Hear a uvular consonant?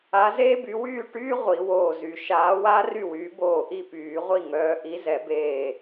yes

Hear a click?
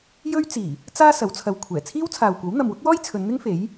no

